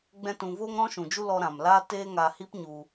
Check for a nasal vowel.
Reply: present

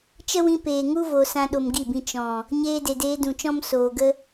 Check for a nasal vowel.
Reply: present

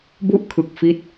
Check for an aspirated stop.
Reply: present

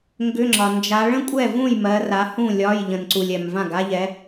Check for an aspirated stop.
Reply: absent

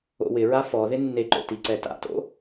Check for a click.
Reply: present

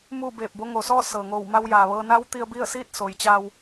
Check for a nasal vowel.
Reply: absent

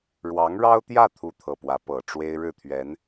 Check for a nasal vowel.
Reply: absent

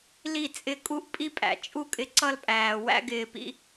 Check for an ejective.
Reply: present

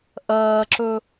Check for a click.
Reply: present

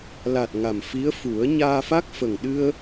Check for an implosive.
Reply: present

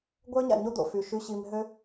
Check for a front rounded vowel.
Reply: present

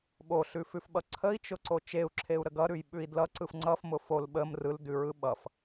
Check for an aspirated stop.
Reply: present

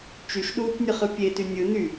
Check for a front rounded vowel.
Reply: present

